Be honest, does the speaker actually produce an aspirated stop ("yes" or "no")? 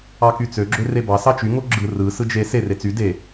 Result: no